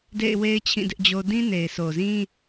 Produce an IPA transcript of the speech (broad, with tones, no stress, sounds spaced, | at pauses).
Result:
d ḛ˦˨ ɪ̯ w e˦ ɪ̯ t͡ɕʰ ĩ˦˨ d ɪ˦ ʔ d͡ʑ o˦ d ĩ˦ n e˨ ɪ̯ s o˨ z ĩ˦